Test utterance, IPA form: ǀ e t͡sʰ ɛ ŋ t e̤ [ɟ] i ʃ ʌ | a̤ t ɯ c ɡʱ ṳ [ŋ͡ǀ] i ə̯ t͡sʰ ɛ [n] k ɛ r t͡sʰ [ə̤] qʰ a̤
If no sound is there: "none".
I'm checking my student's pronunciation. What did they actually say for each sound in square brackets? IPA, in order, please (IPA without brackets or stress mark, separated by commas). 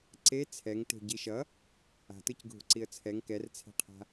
ɟ, ǀ, ŋ, ɛ̤